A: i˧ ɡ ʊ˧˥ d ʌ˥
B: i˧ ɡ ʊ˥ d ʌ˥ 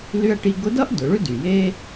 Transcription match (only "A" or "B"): A